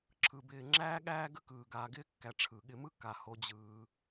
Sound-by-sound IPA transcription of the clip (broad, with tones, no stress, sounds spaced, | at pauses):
ǁʰ ɯ˨ b ɪː˨ ŋ͡ǁ æː˥ ɠ æː˦ ɡ ə˥ k ɯː˩ ɡ aː˨ ɡ ɪː˥ kː æ˨ ʈ͡ʂʰ ɯ˩ ɠ ɪ˨ m ɯ˦ k a˩ h o˨ d͡ʑ ɯː˩